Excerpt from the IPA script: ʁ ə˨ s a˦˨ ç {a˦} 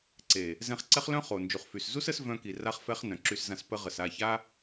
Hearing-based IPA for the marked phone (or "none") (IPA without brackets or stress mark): a˦